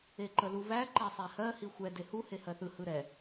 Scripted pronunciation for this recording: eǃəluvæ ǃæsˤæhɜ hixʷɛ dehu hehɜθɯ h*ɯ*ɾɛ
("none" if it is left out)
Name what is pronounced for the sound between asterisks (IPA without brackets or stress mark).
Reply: ɯ